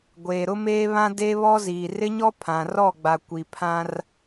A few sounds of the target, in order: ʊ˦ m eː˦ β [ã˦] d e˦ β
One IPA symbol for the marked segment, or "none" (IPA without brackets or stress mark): ã˦